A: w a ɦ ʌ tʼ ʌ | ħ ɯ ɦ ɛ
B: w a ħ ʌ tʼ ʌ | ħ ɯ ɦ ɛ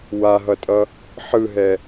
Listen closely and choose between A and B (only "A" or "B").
A